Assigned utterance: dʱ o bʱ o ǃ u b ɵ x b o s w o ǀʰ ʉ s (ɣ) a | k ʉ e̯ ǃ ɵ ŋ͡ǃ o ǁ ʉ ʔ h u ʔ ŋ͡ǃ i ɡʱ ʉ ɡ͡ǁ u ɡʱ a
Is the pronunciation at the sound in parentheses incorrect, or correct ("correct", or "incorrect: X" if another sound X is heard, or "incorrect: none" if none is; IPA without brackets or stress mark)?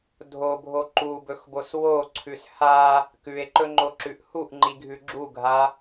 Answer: incorrect: h